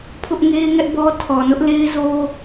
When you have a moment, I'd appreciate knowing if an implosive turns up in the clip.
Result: no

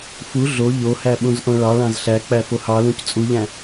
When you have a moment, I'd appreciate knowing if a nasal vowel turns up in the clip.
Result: yes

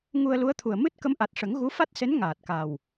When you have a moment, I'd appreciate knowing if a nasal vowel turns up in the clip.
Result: no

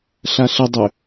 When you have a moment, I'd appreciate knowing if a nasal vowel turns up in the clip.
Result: no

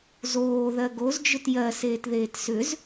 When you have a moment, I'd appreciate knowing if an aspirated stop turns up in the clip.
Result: no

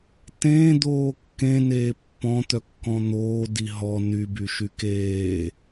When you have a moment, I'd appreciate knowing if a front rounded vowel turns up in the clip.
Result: yes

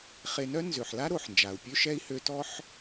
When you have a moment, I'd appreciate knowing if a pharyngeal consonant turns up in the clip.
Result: yes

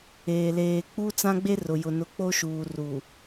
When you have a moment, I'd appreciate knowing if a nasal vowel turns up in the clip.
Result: yes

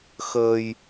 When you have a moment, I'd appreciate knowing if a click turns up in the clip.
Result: no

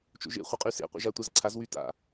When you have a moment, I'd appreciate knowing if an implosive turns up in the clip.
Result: no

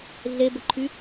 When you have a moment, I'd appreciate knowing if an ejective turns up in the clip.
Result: no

